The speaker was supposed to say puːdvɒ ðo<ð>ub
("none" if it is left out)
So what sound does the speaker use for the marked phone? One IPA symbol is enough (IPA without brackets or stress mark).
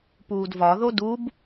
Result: d